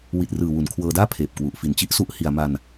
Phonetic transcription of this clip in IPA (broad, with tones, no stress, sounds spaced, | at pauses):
w i˨˩ t̚ r ɯː˨˩ w u˨˩ n kʰ w ɤː˧ d aː˥˩ pʰ eː˨˩ p̚ k w u˨˩ ʔ f i˨˩ n t͡ɕ i˥˩ ʔ s u˦˥ ʔ h i˧ a̯ m a˧ n